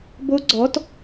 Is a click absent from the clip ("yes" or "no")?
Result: no